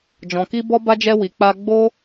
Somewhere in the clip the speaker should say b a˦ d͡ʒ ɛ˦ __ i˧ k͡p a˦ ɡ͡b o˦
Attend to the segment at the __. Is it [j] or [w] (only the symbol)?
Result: w